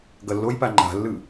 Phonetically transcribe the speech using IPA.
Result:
ɡʌlːojpa ŋ͡ǃa̤lːɯ

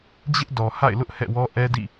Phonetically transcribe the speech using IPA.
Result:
d͡ʑɪ˦ʔdɔ˨ha̰˦˨ɪ̯lʊ˦ʔ hɛ̰˦˨wɔ˦ ʔɛ˦dḭ˦˨

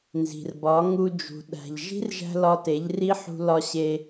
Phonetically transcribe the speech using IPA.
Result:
nzi̤˨rbɒ˨˦ŋu˧ d͡ʒṳ˨ ɗæ̤˨ʎʒi̤˦rʒæ̤˧ lɒ˧te˨˦ʎri˦ ħṳ˦lɒ˦ ɕe˧

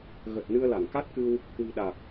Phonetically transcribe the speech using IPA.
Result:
ɣə˨˩t̚ nɨ˧ə̯la˧˩ŋka˦˥t̚kɨ˧w | kwi̤˨˩ɗa˨˩k̚

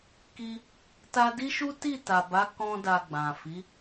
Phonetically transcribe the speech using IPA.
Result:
ki˦ | ta˦ di˦ʃu˦ ti˦˨ta˨ba˨˦ kɔ̃˦da˧ɡ͡bã˨ fi˨˦

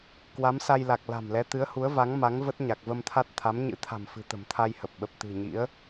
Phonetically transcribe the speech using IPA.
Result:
kwa˨˦msa˧jla˨˩k̚ la̤˨˩mlɛ˨˦t̪ɨ˨˦ə̯ hu˨˦ə̯va˨˦ŋ ma˨˦ŋ və˦˥t̚ɲa˨˩k̚və˧mt̪ʰa˦˥t̚ t̪ʰa˨˦mɲɨ̰˧˥t̪ʰa̤˨˩mfɨ̤˨˩ t̪ə̤˨˩mt̪ʰa˧jhə˨˩p̚ ɓə˨˩p̚t̪ɨ̤˨˩ɲḭ˧˥ə̯

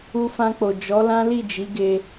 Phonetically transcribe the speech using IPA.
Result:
u˧fã˧k͡po˨ d͡ʒɔ˨˦lã˦ li˦˨d͡ʒi˨˦ɡe˧

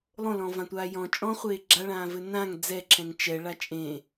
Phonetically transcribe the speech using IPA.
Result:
lˠõlɔ̃ vãtʷaːjɔ̃ t͡ʃʼɔ̃χʷeː ɡ͡ǁaɭãːvɘ nãŋ d͡zɛǁʰɛ̃ŋ t͡ʃɛɭa t͡ʃʼẽː

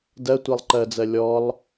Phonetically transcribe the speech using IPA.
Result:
dɜ tʷelˠǃɜd͡zɜ lʲɔlˠ

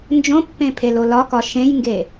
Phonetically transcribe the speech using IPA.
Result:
nd͡ʒõpːẽpʰelo lɒkɒ ʃẽjŋɡe

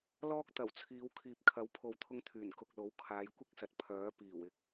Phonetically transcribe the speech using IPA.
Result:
lɔː˥k̚ t̪ɐ˨˩wt͡sʰiː˨˧w kʰiː˨p̚kʰɐ˨˥wpʰo˨wt̪ʰʊ˧ŋ t̪ʰyː˨˩n kʊ˨k̚lo˨˥w kʰaː˨˧jkʷɪ˥k̚sɐ˨t̚ pʰœː˨˥piː˨˩wɪ˨˥k̚

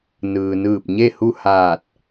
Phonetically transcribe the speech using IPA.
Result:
nɯː˩nɯː˧˩p̚ ɲe˥˨hu˥˨ haː˧˩t̚

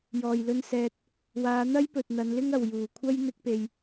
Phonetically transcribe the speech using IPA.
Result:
jɔː˨˩jlɵ˧nsɛː˨t̚ | waː˨˧n̪ɐ˥jpɵ˨t̚ n̪ɐ˨˧nlɪ˥ŋɐ˨w juː˨˩kʷʰɐ˥j n̪ɪ˥k̚pe˧j

